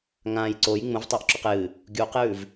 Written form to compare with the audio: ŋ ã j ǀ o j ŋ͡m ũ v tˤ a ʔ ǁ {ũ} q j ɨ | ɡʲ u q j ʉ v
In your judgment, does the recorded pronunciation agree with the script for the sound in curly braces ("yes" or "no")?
no